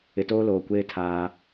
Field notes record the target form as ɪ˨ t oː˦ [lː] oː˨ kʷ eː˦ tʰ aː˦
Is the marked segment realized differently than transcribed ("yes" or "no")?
yes